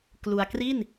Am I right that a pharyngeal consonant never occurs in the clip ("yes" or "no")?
yes